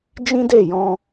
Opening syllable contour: high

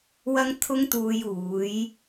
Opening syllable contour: high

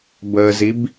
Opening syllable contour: low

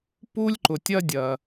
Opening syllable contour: high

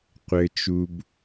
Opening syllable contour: low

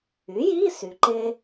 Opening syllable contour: rising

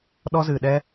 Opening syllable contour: high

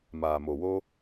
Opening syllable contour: low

